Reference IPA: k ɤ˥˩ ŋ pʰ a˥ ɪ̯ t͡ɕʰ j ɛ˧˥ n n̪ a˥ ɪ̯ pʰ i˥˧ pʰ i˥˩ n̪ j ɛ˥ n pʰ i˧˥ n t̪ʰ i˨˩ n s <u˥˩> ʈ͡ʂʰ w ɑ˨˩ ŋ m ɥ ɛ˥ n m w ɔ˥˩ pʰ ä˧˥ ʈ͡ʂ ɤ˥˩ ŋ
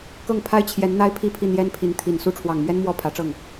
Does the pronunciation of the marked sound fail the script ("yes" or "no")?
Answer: no